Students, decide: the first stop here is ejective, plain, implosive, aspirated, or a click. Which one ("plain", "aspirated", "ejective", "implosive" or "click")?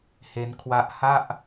aspirated